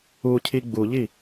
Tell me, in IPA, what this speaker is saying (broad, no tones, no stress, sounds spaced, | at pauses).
u cʰ i ɡ͡b u ʎ i